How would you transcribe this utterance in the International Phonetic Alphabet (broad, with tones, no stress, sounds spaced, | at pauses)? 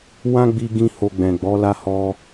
w ã˦ ɡ͡b i˦ ɡ ĩ˦ h o˧ ɡ͡b ɛ̃˨ ɡ͡b ɔ˨˦ l a˦ h ɔ˧